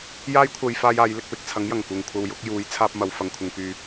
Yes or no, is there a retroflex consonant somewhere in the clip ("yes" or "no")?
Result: no